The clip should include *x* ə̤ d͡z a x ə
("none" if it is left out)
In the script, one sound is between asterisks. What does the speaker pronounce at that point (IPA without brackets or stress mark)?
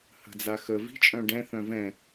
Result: h